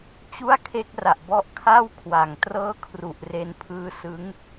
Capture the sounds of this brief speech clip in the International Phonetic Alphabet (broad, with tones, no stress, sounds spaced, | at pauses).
t͡ɕ u˥˩ a̯ kʰ e˦˥ k̚ r a˨˩ ʔ b ɔ˦˥ ʔ kʰ a˥˩ w kʰ w a˨˩ ŋ t r ɤː˥˩ kʰ r u˨˩ ʔ r e˧ n pʰ ɯː˦˥ s ɯ˦˥ ŋ